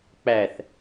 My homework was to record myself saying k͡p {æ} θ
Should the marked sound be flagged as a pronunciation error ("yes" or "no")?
no